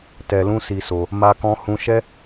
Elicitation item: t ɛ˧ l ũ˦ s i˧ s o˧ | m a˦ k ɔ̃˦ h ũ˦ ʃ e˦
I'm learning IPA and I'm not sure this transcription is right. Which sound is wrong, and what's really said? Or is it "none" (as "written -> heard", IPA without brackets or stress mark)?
e˦ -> ɛ˦